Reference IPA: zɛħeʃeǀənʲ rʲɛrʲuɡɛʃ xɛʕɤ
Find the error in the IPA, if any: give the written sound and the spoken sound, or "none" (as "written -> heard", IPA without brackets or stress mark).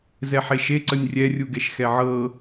none